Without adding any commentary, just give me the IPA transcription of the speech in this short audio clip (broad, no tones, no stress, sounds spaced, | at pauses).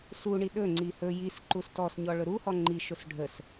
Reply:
s u ɳ i ɗ ɵ ŋ͡ǀ i h ɵ j i s ǃ u s t ɔ s ɲ ɔ ɭ ɵ ɾ u h ɔ ŋ͡ǃ i ʃ o s ɖʱ ə s